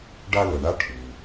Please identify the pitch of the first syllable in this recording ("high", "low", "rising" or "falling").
high